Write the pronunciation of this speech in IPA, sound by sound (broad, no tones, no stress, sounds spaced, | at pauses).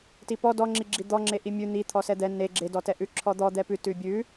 t i p ɔ d ɔ ŋ͡ǁ i ɡ͡ǁ i d̪ ɔ ŋ͡ǁ e ʔ i mʲ ʉ n̪ i t̪ʰ ɔ s ɛ d̪ ɛ n e ɡ͡ǁ e d ɔ t ɛ ʔ ʉ ǁʰ ɔ d̪ ɔ d̪ ɛ p ʉ t ʉ bʲ ʉ